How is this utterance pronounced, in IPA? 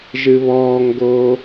ʒ ɨ β ɔː ŋ ɡ oː

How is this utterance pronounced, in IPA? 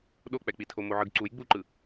ɗ o k͡p ɛ k͡p i tʰ o m o ʕ ɯ ɡ ǀ u j ɡ͡b u ǃ ɯ

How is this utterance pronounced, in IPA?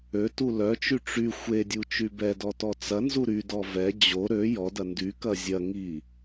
ø t u l œ t͡ʃ y ʈ͡ʂ y xʷ e dʲ u t͡ʃ y b ɛ d ɔ t ɔ t͡s ɐ n z u ɾ y d ɔ v ɛ d͡ʑ o ɾ ø j ɔ d ɐ n d y k ɐ zʲ ɐ ŋ i

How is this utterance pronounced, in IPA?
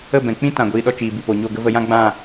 ə˦˨ b ɛ̃˨ k͡p ĩ˦ t ã˨ ɡʷ iː˧ ɗ ɔ˦ t͡ʃ iː˨ b i˨ p o˨ ɲ o˦˨ ɡ ə˦ v ə˧ j ã˦ ɡ͡b ã˦˨

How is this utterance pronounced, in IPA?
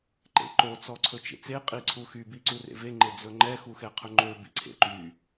ǃ ḛ ǃ o t͡s ɔ ǀʰ ɵ t͡ʃ ḛ t͡s e qʼ i ǀʰ u x y b i ǀ u r ḛ v e ŋ͡ǃ e d͡z ɵ ŋ͡ǃ ɛ x u x ɛ qʰ ɵ ŋ͡ǃ ø b ḭ ǀʰ ḛ ǃ y

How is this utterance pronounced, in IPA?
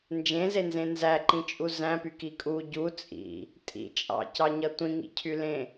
n d͡ʒ ẽ z e n z ẽ n z æ ǃ ĩ t͡ʃʼ u z æ̃ p y k i kʼ u ɟ u t͡sʼ ḭ | tʼ ḭ t͡ʃʼ ɑ̰ c ɑ ɲ ʌ tʷ ĩ ŋ ḭ cʰ y l ẽ

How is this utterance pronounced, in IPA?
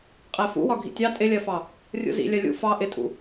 qʼ æ f ṵ w ɒ ɡʱ ḭ tʲ ɑ tʼ ɪ lʲ ɜ f ɑ | rʲ ṵ z ḭ lʲ ɜ lʲ ṵ f ɑ ʔ ɪ tʼ ṵ

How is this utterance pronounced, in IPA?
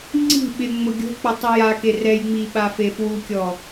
ŋ͡ǀ i̤ ɓ ɪ ŋ͡m ʊ ɡʲ o̤ k͡p ʊ tˤ i j a k e r ɛ j ŋ͡m i ɓ a f e f w u kʲ ɔ

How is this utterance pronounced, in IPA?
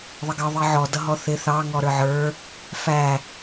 ðˤ ə ɡ ʌ ðˤ i ʕ ɔ d ʌ ɦ ɔ θ ɪ θ ɑ ŋ ɔ ɾ ə˞ ʕ ə˞ | f æ

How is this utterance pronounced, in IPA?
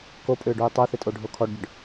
k o pʼ ʏː ɖ uː tˤ o θ ɪ tʼ o ɖʱ o kʰ ɔ ɖ ɟ ʏ ɖ

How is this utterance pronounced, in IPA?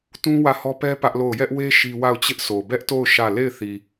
t ũ˦ w ä˦˨ h ɔ˦ p ɛ˦ p ä˦ ʔ l o˦˨ ʊ̯ j ɛ˦ ʔ w e˦ ʃ i˦ w a˦˨ ʊ̯ t͡ɕ ɪ˦ ʔ s o˨ b ɛ˦ ʔ t o˦˨ ʊ̯ ʃ ä˦˨ l e˦˨ ɪ̯ θ i˨

